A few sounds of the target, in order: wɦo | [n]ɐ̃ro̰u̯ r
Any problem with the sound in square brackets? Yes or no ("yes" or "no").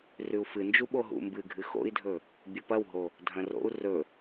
yes